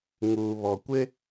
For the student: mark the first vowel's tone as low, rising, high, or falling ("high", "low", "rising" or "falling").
low